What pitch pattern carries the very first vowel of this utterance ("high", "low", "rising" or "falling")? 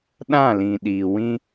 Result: falling